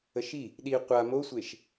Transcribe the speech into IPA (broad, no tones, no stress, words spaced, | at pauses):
əʃi | ɗi qʷa mosʷeʃ